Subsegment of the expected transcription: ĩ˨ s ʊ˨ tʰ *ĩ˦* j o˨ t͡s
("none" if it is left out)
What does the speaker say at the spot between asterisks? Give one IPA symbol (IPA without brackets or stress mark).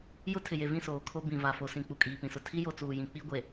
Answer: i˦